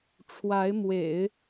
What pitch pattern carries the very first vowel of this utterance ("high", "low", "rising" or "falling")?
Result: rising